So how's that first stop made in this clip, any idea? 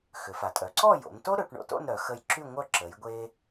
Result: ejective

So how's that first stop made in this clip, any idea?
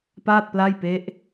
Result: plain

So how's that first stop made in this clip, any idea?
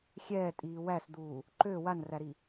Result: ejective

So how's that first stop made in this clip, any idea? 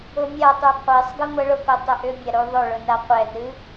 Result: plain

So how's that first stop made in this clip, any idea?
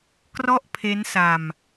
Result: plain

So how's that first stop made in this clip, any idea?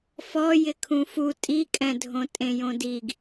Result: aspirated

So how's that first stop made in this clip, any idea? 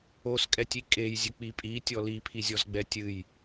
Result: ejective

